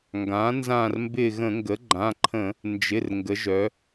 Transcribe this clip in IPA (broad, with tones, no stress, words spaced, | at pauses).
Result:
ŋɡã˩˥ nzã˦˨rmbɪ˦˨ ɣə̃˧˩˧ ŋɡə˩˥ ɡ͡ǃã˩˧˩ǃʰə̃˧˩˧ | nd͡ʒɪ˩˧˩r ŋɡə˩˧ʒœ˩˧